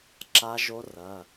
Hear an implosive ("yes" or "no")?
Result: no